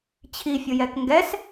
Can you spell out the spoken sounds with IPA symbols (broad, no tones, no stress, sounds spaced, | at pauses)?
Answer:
t͡ɕʰ i fʲ ʊ j ɛ k ŋ ɡ ɛ s